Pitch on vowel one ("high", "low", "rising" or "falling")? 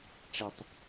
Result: low